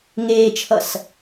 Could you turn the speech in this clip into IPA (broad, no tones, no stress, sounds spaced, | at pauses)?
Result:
ŋ eː t͡ʃʰ ʌ s